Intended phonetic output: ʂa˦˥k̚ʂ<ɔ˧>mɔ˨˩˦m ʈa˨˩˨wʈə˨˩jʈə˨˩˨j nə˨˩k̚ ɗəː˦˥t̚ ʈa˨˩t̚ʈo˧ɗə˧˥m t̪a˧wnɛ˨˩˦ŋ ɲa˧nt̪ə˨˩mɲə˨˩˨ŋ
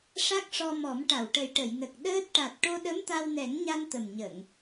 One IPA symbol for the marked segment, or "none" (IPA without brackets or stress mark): ɔ˧